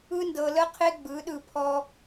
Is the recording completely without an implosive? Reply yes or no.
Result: no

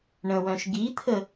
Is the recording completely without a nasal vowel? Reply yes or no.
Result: no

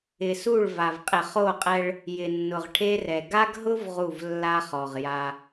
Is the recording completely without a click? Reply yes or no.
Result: yes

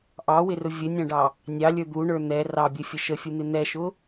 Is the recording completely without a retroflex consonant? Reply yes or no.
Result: no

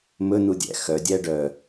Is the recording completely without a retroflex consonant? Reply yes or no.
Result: no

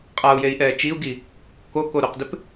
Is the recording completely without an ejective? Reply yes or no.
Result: no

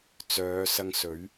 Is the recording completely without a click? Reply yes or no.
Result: yes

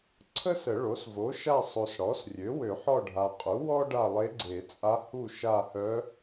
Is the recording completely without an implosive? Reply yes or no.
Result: yes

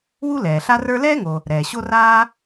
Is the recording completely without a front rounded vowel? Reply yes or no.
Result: yes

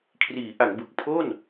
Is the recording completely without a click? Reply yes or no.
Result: yes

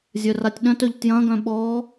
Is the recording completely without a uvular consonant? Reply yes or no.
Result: yes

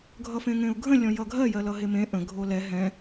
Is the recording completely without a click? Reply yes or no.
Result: yes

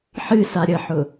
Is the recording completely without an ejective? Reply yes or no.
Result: yes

